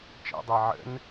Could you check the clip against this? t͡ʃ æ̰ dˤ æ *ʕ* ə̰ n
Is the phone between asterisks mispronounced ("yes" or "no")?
no